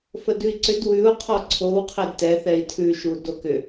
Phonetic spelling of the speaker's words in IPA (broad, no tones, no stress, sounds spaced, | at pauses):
f ə d ʉ i̯ ǀ ʏ d w ʉ u̯ qʰ ɔ ǀʰ o w qʰ ɛ d t ɛ θ ɛ i̯ tʰ ʉ ʃ u d o k ʏ